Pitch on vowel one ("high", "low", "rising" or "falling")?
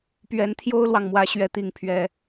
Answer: rising